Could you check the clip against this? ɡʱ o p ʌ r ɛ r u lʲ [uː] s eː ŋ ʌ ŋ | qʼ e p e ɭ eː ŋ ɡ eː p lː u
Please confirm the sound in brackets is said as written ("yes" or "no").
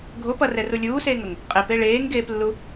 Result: yes